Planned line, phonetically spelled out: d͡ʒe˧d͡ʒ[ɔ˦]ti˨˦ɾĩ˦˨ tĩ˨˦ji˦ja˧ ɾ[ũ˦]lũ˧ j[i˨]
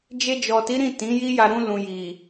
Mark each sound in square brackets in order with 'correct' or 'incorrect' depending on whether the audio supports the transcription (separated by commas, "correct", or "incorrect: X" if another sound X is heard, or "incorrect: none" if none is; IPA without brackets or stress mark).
incorrect: ɔ˨, correct, correct